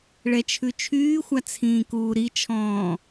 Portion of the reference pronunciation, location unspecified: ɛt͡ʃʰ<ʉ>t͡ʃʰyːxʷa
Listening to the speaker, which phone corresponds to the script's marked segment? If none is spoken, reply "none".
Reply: ʉ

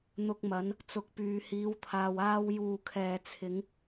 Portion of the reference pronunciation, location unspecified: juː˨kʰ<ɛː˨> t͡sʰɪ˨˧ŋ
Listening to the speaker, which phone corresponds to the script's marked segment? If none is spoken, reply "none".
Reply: ɛː˨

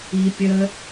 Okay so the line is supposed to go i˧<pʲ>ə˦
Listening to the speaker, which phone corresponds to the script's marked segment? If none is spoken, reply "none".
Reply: pʲ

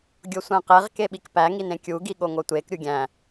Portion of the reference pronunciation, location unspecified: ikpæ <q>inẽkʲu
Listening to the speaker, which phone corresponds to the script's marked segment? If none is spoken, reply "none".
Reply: ŋ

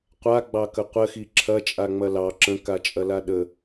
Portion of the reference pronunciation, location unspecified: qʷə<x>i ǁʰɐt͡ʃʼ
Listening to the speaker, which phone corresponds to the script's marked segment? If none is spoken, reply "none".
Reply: x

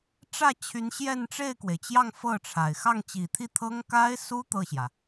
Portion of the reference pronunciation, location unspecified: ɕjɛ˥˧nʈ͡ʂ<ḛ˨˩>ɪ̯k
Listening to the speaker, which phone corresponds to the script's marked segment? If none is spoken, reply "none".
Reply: e˥˩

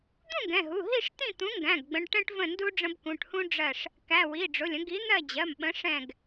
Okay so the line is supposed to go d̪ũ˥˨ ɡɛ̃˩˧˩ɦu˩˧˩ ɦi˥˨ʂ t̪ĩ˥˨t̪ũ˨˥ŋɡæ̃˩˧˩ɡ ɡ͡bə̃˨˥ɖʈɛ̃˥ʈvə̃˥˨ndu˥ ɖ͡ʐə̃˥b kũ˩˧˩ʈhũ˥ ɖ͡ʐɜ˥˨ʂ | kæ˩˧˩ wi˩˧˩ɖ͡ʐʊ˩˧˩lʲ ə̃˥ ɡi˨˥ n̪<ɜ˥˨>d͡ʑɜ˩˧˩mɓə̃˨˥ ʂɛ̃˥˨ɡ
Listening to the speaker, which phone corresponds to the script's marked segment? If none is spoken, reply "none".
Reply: ɜ˥˨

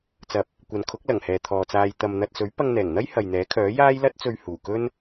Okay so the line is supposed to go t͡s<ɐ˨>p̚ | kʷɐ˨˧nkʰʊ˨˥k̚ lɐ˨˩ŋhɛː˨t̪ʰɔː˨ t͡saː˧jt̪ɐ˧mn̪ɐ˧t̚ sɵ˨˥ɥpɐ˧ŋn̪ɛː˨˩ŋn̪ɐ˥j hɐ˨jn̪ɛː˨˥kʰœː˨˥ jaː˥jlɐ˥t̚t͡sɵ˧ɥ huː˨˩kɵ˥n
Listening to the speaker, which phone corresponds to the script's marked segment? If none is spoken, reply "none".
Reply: ɐ˨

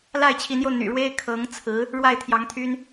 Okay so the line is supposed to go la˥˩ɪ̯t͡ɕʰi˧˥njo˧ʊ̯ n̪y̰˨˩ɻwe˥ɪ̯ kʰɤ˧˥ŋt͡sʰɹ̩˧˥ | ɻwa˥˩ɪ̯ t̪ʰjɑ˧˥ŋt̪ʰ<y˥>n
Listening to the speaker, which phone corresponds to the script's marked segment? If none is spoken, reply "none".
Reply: y˥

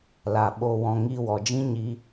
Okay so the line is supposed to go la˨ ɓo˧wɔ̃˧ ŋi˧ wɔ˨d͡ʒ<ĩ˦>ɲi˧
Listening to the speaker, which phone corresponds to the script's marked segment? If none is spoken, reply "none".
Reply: ĩ˦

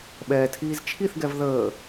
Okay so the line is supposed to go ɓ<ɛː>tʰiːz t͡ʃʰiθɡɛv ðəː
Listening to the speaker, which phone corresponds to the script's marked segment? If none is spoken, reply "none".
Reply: ɛː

